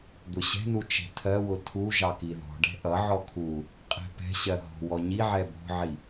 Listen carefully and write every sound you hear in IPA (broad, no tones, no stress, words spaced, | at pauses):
d̪ʊɕɛ̤nu t͡ʃɛ̤tʰɜwʊ tʰuʒɑ kiðɔ̤ɖɛ̤ ʔʌʕɔ kʰu | qʼɛ̤pɛ̤ɕɜ ɦɔ̤wɔ ɲiʕɛ bɔ̤ʕi